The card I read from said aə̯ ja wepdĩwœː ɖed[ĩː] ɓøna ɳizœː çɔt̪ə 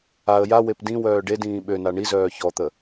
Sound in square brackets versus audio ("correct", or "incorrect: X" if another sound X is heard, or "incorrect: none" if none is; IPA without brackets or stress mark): correct